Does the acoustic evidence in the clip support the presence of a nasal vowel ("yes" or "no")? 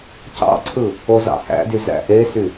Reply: no